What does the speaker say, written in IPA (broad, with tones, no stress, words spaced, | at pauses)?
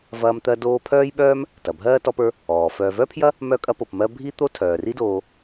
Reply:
vɐː˦mt̪ɜ˦ doː˦pʰœː˥jɓœː˥m | tɐ˩bʱɜː˥tɔ˦pə˞˦ | ɔː˩fœː˨ vœ˥pʰjɐ˥ | mœ˦ kʼɐ˦po˨pmɜ˦ bʱi˥t̪o˥ tʰœː˩ri˦doː˨